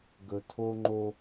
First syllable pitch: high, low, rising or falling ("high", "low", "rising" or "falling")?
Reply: low